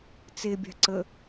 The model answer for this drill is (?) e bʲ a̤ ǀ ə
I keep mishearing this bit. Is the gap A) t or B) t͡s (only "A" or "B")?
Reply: B